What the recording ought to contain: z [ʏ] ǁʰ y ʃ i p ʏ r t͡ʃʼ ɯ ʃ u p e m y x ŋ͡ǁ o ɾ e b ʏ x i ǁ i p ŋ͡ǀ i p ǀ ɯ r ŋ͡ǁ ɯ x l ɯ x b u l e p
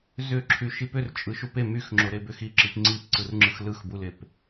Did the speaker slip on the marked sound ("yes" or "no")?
no